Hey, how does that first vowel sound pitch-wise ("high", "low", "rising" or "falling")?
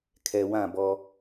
low